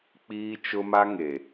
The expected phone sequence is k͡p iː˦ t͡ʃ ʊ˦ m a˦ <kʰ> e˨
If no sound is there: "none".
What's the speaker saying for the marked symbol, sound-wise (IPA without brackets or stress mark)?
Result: ŋ